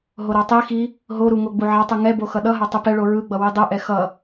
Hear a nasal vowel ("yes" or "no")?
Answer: no